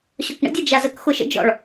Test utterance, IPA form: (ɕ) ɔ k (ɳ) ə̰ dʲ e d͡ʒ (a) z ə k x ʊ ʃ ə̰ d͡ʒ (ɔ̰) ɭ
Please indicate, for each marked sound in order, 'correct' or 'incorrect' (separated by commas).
correct, correct, correct, correct